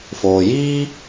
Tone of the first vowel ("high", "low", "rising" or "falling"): low